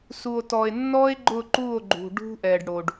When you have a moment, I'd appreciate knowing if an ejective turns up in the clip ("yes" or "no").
no